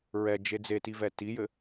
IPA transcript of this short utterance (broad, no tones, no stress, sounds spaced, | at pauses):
ɹ ɛ d͡ʒ e d͡z e t i v ɛ t i j ɘ